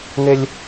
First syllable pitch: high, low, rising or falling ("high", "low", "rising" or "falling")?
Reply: high